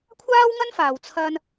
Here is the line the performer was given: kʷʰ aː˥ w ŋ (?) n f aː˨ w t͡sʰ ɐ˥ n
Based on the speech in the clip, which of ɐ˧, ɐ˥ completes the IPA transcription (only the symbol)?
ɐ˥